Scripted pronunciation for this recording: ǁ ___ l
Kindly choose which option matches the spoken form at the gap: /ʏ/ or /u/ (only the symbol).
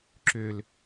ʏ